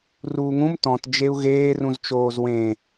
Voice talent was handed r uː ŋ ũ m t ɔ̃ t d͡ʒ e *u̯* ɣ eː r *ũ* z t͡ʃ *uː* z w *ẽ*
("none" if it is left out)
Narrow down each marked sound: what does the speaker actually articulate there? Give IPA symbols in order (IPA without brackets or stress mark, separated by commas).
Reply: u̯, ũ, oː, ẽ